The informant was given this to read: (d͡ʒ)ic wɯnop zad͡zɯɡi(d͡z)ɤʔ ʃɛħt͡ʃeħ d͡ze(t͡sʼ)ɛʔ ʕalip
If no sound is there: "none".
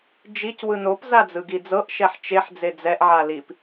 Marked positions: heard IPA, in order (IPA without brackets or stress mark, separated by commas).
d͡ʒ, d͡z, d͡z